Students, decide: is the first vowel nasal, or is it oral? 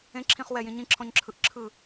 nasal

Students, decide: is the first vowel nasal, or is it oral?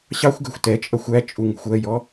oral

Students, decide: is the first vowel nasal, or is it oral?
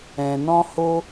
nasal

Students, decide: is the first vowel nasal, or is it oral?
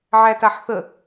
oral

